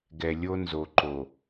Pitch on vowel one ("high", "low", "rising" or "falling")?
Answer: low